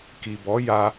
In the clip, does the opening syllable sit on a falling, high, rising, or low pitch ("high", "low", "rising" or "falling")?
low